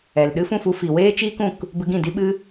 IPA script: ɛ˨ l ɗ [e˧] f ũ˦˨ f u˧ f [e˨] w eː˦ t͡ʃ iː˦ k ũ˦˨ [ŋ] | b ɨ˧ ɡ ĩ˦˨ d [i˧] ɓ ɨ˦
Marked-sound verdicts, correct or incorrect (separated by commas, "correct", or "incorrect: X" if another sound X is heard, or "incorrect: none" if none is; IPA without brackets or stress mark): incorrect: ɨ˧, incorrect: i˨, incorrect: k, incorrect: i˦